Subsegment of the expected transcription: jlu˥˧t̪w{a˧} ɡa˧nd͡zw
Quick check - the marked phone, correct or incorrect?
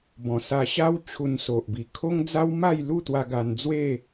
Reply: correct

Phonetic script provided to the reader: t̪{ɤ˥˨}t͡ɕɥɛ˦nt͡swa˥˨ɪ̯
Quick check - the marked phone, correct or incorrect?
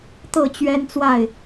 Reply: correct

